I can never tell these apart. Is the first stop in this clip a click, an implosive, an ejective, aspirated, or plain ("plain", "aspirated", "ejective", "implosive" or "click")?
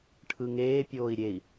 aspirated